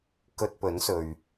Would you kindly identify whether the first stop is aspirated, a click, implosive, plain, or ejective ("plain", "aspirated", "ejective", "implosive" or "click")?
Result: plain